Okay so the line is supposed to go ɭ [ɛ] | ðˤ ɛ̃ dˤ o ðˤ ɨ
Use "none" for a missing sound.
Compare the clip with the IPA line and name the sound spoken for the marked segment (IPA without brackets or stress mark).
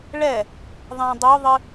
ɛ